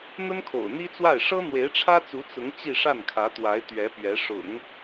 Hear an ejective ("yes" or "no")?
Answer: no